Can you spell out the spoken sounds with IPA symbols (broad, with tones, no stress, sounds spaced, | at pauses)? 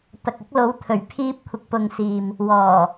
t̪ ɐ˨ k̚ ʊ˧ k̚ l o˨˧ w t̪ʰ ɵ˨˩ ɥ pʰ iː˧ p̚ kʷʰ ɪ˨ k̚ p ʊ˨ ŋ s iː˨ m | w ɔː˨˩